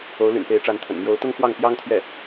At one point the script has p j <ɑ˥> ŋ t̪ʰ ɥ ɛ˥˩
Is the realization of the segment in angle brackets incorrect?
no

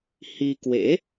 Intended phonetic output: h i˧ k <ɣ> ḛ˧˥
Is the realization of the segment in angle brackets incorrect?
yes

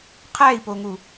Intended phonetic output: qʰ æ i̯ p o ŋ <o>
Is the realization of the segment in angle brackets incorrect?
yes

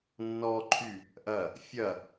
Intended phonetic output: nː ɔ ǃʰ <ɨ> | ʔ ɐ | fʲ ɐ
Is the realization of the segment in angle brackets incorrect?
yes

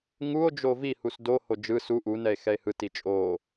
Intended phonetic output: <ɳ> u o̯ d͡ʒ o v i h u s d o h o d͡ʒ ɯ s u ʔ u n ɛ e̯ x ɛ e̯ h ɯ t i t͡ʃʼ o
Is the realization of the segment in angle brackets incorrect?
yes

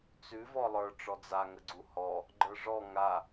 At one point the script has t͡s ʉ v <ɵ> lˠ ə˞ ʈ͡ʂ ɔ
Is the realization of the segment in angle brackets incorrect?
yes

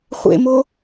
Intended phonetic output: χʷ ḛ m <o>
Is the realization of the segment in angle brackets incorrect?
no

